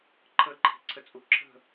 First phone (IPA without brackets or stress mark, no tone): ǃʰ